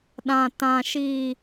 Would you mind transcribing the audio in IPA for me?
ɗ ã˨ t ã˨ ʃ i˨

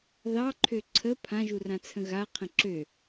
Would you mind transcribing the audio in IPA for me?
ð ɑ ǃʰ ø ǀʰ ə pʰ ã ʒ u r ã t͡sʰ ə̃ ɣ a qʰ ə̃ ǁ ø

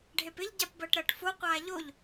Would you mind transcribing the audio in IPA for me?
ɖʱ e p ɪ ʎ ɟ a p b əː ʈ ɾ əː ʈ f o qʷ aː ʎ o ʎ

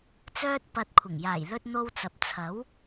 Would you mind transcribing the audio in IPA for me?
t͡s œː˧ t̚ p ɐ˨ t̚ kʷʰ ɪ˨˩ ŋ j aː˨˩ j l ɵ˧ t̚ n̪ o˧ w t͡s ɐ˨ p̚ t͡sʰ ɐ˨˥ w

